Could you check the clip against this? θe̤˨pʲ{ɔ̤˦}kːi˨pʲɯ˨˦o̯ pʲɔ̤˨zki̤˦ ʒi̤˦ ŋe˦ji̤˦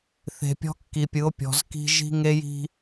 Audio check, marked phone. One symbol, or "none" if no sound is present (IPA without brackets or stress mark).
ɔ̤˦